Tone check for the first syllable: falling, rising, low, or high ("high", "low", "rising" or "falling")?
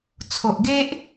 low